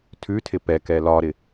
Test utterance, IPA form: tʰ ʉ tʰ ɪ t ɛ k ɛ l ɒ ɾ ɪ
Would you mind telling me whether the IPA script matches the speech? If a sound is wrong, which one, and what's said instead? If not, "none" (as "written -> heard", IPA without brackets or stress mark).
t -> p